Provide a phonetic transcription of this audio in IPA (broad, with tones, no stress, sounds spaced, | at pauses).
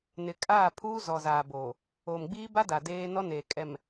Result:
n ɪ˨ kʼ aː˦˨ pʰ uː˦ z ɔ˨ z aː˨ b oː˨ | o˨ m ɡ͡b iː˦ b a˦ d a˨ d eː˦ n ɔ˦ n eː˨ kʼ ɛ˨ m